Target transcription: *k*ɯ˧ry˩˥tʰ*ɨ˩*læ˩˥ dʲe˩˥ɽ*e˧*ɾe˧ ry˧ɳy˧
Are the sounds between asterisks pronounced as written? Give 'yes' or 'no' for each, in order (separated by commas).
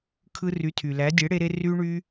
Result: no, no, yes